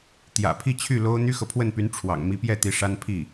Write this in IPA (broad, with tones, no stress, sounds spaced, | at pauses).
t̪ j ä̰˨˩ pʰ i˥˧ t͡ɕʰ y˥˩ l o˥ ʊ̯ n̪ y˥ x ɤ˨ pʰ w ə˥˩ n p y˧˥ n ʈ͡ʂʰ w ɑ̰˨˩ ŋ m i˧˥ p j ɛ˥˩ t̪ i˧˥ ʂ a˥ n pʰ i˥˩